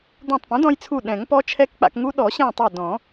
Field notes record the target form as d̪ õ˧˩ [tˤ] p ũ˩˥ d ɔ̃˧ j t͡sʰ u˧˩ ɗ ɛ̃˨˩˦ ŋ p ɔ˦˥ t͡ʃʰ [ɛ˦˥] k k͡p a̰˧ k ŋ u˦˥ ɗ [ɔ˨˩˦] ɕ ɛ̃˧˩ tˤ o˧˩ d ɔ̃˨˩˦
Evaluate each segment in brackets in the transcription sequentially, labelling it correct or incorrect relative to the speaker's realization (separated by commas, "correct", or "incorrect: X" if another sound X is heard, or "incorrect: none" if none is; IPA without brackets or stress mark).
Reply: correct, correct, correct